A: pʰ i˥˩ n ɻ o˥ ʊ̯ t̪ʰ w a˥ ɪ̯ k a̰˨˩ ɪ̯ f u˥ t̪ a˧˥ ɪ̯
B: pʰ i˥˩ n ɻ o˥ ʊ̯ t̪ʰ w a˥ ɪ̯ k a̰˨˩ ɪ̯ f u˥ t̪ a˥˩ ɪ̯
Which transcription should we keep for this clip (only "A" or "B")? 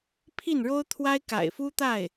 B